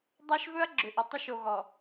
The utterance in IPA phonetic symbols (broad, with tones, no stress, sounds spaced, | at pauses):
dˤ a˦ ʃ v ɵ˦ ɐ̯ ɡ͡ǁ ʏ˨ ʔ ɵ˨ tˤ ʏ˦ ʃ o˨ ɣ ɔ˨